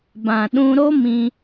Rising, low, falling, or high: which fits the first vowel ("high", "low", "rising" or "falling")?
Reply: low